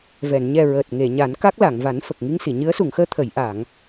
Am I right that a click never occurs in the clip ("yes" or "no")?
yes